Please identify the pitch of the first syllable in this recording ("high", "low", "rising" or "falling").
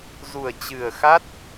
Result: low